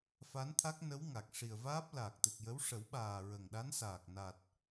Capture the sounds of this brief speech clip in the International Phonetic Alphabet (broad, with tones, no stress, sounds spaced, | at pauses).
f a˧˥ n t̪ʰ a˦˥ k̚ n ə˧˥ w ŋ a˨˩ k̚ ʂ i˨˩ ə̯ v aː˦˥ p̚ l aː˨˩ k̚ t̪ ɨ˨˩ k̚ j ə˧˥ w ʂ ə˨˩˦ w ɓ aː˨˩ ɹ ə˨˩ ŋ ɗ a˧˥ n s aː˨˩ k̚ n a˨˩ t̚